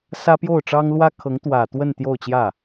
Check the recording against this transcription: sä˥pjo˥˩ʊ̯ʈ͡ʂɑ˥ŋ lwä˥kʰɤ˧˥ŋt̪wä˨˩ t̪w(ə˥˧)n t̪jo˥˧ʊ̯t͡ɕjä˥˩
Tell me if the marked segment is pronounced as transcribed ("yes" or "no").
yes